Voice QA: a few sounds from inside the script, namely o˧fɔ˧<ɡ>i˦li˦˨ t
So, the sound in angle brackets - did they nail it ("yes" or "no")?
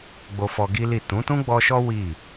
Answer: yes